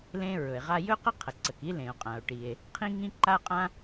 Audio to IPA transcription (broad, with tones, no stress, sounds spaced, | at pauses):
l ẽ˥ ɹ ɵ˩ e̯ ʁ a˥ j ɵ˥ q ə˥ qʰ ə˩ ǀ ə˩ k i˥ l ẽ˩ o̯ qʼ ã˩ o̯ ʈ i˩ e̯ | qʰ ĩ˥ ŋ ĩ˥ ǃ a˥ qʼ ã˥